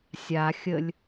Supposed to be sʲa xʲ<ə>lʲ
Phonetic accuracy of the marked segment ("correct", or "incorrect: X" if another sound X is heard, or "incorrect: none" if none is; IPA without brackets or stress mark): correct